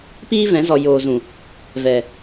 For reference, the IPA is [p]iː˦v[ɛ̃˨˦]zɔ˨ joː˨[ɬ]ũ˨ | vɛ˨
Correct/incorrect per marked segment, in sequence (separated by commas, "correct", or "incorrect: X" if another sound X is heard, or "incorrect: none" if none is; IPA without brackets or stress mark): correct, correct, incorrect: z